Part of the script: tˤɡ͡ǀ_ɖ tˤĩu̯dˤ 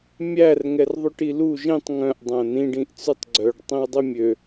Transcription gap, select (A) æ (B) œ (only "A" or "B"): B